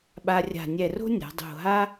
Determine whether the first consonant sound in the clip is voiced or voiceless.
voiced